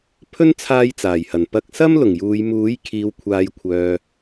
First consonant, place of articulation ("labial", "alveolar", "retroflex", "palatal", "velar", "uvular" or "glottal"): labial